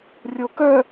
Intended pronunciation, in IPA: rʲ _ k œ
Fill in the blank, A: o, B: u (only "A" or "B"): A